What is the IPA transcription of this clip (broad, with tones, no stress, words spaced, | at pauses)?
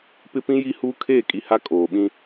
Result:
pɪ˦pĩ˦ji˦huː˦ kʰeː˦˨kʼi˨ha˦ kʼoː˨ɓĩ˦